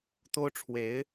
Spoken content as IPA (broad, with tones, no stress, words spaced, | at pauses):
t̪o˥ʊ̯ʈ͡ʂʰwe˧˥ɪ̯